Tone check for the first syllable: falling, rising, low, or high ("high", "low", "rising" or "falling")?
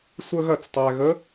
falling